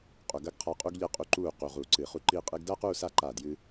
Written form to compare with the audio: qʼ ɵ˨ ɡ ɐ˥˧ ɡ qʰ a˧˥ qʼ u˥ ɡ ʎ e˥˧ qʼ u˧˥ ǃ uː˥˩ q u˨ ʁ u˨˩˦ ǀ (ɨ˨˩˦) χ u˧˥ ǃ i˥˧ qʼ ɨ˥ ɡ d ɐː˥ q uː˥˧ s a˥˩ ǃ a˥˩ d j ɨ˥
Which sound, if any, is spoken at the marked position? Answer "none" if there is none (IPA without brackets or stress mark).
ɨ˨˩˦